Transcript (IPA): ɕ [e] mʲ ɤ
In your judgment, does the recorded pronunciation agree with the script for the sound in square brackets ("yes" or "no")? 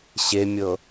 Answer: yes